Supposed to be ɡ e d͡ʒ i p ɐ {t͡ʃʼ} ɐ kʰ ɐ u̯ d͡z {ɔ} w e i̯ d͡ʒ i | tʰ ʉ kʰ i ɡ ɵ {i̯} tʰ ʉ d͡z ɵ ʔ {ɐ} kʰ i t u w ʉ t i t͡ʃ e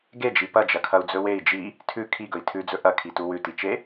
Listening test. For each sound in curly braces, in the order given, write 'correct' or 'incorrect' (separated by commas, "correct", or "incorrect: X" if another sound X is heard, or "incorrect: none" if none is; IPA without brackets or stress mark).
incorrect: d͡ʒ, incorrect: ɵ, correct, correct